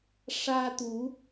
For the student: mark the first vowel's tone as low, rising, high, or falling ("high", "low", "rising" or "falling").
high